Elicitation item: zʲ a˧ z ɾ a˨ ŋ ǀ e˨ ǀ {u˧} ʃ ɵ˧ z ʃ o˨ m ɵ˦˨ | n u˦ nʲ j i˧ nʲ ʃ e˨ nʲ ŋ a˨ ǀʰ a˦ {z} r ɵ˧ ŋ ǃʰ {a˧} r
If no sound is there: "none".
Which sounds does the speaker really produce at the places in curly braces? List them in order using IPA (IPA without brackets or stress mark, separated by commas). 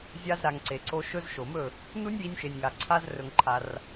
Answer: o˧, z, a˧